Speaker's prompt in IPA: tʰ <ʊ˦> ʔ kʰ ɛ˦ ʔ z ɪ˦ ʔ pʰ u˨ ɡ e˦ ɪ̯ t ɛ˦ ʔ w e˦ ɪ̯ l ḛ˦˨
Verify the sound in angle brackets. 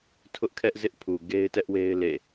correct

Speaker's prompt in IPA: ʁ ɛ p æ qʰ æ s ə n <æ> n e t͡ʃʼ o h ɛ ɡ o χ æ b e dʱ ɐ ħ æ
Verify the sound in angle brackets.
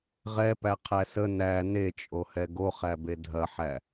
correct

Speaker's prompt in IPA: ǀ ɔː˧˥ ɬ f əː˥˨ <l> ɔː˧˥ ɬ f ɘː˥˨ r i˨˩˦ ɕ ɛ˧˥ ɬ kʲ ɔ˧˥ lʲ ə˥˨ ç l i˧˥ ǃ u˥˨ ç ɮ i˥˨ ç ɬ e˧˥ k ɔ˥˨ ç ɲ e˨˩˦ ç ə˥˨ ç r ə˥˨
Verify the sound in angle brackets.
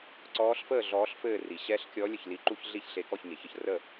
incorrect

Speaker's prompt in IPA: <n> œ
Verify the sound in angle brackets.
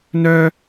correct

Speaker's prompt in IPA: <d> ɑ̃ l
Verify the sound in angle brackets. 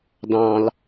correct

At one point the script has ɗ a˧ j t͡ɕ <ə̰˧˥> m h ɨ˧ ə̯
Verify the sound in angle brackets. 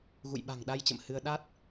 incorrect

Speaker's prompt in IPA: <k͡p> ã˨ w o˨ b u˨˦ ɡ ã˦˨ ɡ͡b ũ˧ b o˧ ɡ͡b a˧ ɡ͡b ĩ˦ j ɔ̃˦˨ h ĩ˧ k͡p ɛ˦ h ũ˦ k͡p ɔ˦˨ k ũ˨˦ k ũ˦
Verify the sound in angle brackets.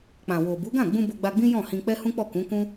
correct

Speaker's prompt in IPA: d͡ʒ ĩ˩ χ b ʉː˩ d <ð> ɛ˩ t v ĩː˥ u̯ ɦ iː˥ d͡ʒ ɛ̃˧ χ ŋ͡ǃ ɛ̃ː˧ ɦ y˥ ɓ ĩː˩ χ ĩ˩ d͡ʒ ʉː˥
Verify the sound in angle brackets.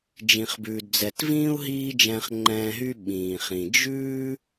incorrect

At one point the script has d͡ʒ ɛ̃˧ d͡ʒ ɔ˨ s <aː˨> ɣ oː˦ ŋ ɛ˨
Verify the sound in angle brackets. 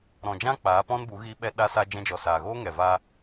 correct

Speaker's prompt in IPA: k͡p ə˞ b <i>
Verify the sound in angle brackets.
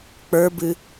incorrect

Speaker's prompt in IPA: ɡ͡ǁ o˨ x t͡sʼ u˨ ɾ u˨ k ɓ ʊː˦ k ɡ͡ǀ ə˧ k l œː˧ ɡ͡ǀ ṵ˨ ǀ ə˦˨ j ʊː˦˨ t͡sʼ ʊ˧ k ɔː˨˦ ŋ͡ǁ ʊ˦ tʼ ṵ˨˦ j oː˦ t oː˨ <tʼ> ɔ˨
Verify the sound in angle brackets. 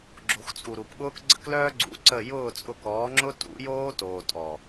correct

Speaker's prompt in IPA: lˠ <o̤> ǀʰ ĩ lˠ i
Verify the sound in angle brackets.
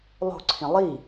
correct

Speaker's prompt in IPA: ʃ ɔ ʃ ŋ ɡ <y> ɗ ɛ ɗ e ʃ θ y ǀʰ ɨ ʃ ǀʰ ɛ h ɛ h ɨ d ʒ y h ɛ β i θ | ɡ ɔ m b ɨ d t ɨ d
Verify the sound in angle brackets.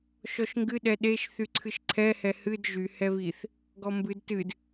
incorrect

